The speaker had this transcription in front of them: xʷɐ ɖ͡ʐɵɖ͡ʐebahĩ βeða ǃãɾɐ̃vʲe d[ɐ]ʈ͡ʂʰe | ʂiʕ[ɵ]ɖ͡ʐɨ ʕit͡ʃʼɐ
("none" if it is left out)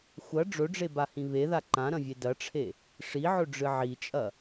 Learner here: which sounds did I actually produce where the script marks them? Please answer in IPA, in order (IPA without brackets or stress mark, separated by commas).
ɐ, ɵ